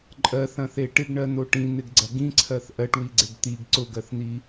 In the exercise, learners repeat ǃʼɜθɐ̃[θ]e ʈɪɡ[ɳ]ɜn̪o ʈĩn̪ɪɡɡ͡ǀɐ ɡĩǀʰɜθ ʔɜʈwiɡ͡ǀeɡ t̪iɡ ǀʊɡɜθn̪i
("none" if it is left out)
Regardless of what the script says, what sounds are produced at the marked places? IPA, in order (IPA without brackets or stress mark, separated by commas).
θ, ɳ